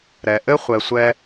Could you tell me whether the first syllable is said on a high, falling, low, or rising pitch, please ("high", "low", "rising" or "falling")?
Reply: low